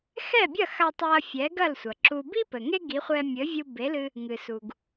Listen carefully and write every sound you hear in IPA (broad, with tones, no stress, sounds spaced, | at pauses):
x ɛ˥˩ bʲ ɐ˥˩ x a˧ tˤ w ɐ˧ fʲ ɛ˩˥ ɡ ɐ˥˩ l sʷ ɐ˩ ǁ u˧ b i˥ p ɘ˩ ŋ e˥ ɡ i˩˥ χʷ ɛ˧ mʲ ɘ˩˥ vʲ u˧ b e˩˥ l ɨ˧ | ŋ ɨ˩ s u˩ ɡ